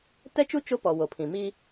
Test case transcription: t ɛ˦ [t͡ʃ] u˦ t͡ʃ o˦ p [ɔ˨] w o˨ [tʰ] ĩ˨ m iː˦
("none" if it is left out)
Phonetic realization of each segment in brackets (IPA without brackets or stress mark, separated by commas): t͡ʃ, ɔ˨, pʰ